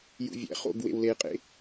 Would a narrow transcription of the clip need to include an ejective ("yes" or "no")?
yes